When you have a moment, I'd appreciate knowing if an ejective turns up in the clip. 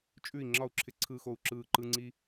yes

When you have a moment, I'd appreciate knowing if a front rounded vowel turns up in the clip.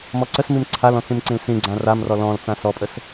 no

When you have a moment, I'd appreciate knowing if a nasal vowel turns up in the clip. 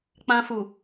yes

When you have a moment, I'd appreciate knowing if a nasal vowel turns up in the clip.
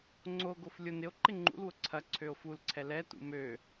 no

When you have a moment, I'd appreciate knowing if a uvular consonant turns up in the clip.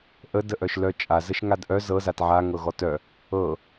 no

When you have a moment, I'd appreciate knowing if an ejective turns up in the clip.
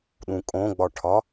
yes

